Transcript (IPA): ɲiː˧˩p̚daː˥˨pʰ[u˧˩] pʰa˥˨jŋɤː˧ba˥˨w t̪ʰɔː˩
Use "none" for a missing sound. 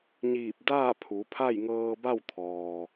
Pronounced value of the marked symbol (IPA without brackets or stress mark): u˩˧